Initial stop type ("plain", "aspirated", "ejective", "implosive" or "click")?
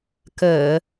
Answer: plain